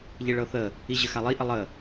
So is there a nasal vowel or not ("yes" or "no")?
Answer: no